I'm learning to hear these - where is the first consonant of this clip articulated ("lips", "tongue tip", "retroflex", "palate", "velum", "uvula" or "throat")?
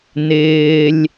tongue tip